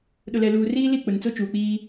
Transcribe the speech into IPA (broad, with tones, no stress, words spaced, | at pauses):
ɗʊ˨lɛ˨luː˨riː˦ li˦˨ k͡pʊ˨nt͡so˦ t͡ʃuː˨k͡piː˦